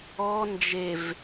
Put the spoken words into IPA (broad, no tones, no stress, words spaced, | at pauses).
ɔ nd͡ʒev